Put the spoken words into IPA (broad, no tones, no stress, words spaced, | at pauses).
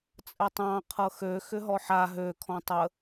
t͡sʼətˤɑ̃ qʰɤxø xʏɦɔħa ɦø kʰɔ̃tˤə